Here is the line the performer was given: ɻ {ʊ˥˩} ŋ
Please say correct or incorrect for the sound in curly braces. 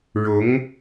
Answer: incorrect